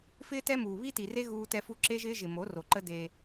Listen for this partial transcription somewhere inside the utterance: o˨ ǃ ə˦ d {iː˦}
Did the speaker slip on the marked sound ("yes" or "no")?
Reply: yes